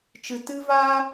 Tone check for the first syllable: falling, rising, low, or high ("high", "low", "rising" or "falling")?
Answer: low